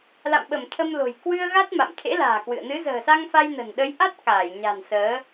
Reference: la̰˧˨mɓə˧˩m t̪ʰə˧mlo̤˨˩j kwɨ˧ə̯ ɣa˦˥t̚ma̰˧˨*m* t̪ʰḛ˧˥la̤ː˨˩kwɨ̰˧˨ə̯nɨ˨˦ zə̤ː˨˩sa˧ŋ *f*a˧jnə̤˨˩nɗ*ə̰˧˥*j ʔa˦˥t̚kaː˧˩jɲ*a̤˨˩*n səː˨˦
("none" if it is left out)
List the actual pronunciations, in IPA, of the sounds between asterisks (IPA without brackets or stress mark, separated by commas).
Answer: m, f, ə˨˦, a̤˨˩